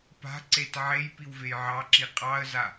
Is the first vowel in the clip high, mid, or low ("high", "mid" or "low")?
low